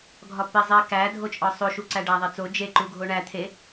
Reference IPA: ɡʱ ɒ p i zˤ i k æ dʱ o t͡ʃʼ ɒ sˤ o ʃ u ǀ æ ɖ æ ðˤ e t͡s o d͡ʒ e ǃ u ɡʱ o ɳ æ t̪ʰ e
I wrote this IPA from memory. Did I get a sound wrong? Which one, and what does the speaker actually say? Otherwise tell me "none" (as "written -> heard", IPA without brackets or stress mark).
none